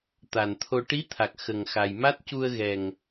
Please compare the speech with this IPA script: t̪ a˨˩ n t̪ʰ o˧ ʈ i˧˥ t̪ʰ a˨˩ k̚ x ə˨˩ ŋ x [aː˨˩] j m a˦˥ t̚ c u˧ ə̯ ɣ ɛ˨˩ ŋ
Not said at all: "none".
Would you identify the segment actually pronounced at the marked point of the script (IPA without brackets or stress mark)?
a˨˩